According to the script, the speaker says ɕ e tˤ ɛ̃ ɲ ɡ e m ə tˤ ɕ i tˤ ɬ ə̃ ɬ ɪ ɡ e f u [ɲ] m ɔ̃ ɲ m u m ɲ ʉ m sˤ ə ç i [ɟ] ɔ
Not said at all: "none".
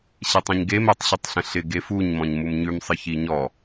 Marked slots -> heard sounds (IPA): ɲ, ɲ

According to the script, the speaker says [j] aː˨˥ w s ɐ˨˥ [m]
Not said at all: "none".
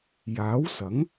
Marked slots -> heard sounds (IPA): j, ŋ

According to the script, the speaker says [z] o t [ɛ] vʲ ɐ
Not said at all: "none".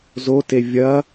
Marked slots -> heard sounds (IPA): z, e

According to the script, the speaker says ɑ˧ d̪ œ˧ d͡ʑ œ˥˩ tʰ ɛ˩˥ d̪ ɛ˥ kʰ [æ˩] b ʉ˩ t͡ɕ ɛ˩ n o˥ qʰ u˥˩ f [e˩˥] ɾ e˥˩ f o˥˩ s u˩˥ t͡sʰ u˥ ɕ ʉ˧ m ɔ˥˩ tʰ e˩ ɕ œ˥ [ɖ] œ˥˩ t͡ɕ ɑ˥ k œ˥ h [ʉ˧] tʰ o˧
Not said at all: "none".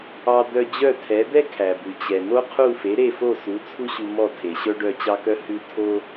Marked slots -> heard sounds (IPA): æ˩, e˩˥, ɖ, ʉ˧

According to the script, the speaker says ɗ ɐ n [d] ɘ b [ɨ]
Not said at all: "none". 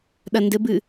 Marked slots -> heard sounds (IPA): d, ɨ

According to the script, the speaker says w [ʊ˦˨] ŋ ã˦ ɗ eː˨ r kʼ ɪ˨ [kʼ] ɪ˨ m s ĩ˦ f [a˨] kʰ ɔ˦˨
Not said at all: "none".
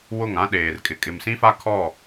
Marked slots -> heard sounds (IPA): ʊ˦˨, kʼ, a˦

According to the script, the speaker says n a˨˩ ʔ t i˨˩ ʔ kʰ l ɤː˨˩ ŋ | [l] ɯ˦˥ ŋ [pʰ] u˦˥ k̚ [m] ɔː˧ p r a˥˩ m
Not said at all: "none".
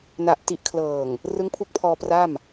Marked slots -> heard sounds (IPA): r, pʰ, pʰ

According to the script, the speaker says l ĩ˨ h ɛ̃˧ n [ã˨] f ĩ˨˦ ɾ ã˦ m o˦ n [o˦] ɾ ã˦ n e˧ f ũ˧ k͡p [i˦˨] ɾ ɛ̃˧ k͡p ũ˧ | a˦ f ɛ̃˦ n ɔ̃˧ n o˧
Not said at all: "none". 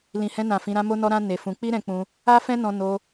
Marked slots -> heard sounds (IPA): ã˨, ɔ˦, i˦

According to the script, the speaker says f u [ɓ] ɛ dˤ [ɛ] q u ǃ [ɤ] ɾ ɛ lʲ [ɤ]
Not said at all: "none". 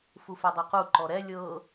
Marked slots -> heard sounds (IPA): f, ɛ, ɔ, ɤ

